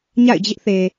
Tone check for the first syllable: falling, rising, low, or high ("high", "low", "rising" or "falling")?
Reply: falling